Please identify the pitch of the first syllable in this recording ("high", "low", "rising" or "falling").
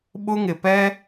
high